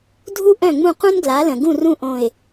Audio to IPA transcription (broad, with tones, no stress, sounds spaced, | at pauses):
dʱ u˥ ʔ œ̃˥˩ ŋ͡m ũ˥˩ q ũ˥ n ɡ l a˩˥ l ə̃˩ ɡ ũ˥˩ r ũ˥˩ ʔ õ˧˩ ɪ̯